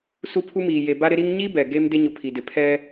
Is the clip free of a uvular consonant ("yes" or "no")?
yes